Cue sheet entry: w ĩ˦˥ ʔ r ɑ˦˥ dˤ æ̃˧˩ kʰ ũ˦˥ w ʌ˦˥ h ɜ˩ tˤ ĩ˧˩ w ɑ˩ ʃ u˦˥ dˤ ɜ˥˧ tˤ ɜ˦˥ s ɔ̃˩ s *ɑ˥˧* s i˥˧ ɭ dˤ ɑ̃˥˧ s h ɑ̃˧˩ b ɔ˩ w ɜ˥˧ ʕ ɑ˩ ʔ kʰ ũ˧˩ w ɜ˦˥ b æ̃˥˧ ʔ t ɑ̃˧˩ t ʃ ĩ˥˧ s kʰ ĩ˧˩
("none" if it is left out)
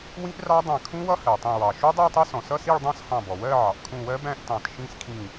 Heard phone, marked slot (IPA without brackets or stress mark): ʌ˥˧